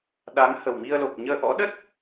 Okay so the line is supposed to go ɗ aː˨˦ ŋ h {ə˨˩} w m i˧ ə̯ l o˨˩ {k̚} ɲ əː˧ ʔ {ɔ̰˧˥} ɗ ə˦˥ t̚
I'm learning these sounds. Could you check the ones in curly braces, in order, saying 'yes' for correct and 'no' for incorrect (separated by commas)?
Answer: yes, yes, yes